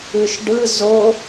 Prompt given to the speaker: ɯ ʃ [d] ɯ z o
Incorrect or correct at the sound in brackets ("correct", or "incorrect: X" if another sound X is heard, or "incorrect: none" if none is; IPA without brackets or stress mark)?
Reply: incorrect: ɖ